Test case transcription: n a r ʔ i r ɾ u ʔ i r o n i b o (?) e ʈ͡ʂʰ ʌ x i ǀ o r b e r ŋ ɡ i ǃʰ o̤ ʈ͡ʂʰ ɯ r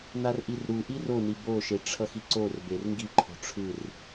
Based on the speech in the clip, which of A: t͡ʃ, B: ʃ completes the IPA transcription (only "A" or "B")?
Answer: B